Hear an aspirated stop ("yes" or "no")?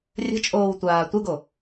no